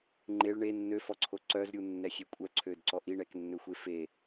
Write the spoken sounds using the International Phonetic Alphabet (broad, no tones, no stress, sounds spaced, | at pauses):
ŋ͡ǃ e ɭ ɳ e nː ø f ɔ ǀʰ o ǀ œ z ɾʲ u nː ɛ xʲ e kʷʼ œ ǀʰ ø d ǀ ɔ ʔ i ɳ ɛ k nː ø xʷ e f e